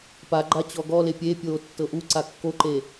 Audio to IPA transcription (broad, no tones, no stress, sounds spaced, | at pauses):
p a ɡ͡ǃ a t͡ɕ ɔ ɡ ɔ l e pʲ e pʲ oː tː ɤ ʔ u ǀ a kː o ǃ e